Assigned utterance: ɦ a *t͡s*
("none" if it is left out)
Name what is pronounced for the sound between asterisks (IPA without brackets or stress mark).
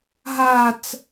t͡s